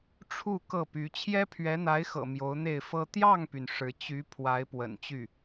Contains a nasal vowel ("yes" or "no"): no